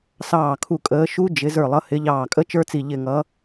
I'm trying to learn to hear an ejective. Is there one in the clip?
yes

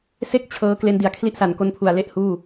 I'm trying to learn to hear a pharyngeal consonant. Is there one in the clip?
no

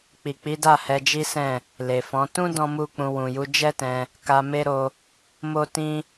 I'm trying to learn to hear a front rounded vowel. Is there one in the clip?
no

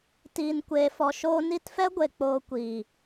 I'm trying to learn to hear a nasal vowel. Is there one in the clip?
no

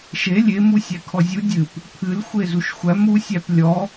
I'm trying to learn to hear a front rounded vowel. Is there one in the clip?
no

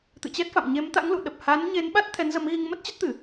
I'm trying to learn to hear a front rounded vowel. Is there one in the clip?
no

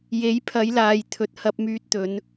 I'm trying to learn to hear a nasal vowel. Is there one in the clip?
no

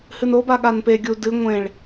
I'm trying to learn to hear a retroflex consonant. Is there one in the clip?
yes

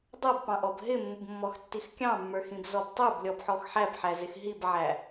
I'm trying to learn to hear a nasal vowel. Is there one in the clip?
yes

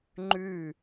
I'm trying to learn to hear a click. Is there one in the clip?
yes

